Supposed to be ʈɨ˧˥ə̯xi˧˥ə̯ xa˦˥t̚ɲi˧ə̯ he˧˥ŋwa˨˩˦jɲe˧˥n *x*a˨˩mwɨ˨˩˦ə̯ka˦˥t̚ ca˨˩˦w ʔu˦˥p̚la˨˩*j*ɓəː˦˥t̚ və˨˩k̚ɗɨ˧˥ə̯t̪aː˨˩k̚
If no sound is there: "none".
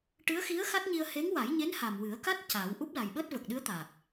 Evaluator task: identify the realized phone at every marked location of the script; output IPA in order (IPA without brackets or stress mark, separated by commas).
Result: h, j